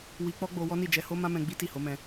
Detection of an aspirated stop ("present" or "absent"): absent